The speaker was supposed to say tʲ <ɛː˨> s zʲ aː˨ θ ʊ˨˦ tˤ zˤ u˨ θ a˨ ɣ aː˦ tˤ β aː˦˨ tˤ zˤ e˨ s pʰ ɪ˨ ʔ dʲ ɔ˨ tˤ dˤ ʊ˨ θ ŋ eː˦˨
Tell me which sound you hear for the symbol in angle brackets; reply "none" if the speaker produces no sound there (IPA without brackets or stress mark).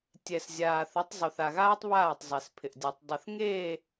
ɛ˨